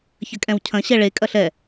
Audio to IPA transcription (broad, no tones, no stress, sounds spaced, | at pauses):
ç ɐ kʼ ɛ̃ w cʰ ɐ̃ ɕ ɛ ɭ e kʼ ɐ ɬ ɛ